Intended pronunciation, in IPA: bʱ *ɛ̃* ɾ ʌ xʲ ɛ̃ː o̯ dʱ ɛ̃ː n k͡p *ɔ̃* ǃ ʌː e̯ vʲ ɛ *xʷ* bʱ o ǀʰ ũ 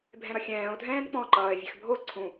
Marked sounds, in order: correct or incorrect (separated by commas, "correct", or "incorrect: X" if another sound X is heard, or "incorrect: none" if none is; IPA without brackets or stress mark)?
correct, correct, incorrect: x